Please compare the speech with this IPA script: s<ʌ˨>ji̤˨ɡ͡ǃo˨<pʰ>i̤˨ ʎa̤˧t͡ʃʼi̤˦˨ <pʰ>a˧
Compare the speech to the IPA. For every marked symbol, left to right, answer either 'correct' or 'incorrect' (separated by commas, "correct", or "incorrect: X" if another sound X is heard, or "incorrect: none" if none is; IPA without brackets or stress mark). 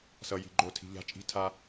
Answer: correct, incorrect: tʰ, incorrect: tʰ